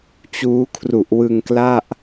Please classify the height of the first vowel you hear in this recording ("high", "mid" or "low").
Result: high